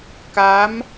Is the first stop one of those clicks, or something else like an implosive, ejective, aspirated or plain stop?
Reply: plain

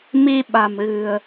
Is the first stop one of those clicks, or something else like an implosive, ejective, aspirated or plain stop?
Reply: implosive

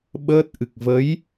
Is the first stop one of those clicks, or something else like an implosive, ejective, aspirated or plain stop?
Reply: implosive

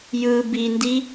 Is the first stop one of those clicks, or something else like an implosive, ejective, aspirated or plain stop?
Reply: plain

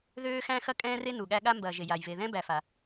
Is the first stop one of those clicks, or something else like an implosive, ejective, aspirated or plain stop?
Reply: ejective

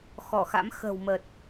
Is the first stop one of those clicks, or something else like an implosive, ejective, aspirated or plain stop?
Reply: plain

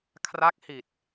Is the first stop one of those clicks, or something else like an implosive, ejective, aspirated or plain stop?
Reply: aspirated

